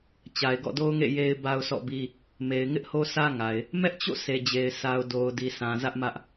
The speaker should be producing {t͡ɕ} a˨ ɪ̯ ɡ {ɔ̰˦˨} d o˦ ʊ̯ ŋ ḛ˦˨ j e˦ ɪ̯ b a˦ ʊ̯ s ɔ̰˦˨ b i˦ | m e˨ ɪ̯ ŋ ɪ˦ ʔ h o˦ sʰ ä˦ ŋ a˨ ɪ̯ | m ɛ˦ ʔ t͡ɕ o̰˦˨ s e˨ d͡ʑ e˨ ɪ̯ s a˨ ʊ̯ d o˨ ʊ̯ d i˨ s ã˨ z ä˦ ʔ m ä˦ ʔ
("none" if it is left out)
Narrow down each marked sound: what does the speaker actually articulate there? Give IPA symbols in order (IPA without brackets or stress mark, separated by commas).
t͡ɕ, ɔ̰˦˨